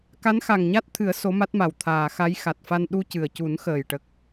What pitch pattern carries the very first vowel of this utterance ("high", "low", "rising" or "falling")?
rising